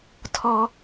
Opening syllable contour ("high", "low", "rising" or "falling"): high